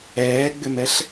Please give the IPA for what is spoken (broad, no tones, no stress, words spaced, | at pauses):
ɛːɡ͡bʏmɛɬ